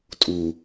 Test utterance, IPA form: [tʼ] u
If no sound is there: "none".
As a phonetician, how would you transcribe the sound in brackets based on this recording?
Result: tʼ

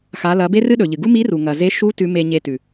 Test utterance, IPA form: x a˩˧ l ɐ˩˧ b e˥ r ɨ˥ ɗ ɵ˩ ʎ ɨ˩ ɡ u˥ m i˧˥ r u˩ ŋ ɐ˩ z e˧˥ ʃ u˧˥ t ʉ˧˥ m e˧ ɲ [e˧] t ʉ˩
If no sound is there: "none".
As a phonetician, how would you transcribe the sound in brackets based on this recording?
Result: e˧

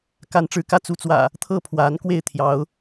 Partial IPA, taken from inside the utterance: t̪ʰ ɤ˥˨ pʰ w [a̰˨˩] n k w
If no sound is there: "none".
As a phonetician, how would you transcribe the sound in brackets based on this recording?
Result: a˨˦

